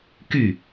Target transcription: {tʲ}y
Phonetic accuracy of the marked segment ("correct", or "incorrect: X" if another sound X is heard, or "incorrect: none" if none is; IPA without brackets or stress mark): incorrect: k